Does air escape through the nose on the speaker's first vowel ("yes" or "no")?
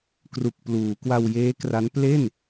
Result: no